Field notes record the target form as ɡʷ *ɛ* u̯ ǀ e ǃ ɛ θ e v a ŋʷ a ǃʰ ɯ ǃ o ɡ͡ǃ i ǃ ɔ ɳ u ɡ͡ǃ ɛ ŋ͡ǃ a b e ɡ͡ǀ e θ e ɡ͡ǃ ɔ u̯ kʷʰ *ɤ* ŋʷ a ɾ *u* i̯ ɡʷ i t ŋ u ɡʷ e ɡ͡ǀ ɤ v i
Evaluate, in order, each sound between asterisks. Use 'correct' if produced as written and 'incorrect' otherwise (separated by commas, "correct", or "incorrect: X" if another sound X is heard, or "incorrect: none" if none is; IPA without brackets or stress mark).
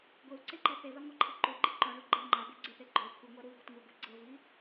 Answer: incorrect: e, incorrect: ɯ, correct